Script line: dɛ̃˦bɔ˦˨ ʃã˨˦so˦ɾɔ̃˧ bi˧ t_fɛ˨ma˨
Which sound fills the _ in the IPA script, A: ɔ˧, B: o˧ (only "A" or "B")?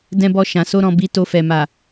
B